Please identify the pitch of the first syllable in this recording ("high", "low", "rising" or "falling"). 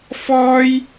high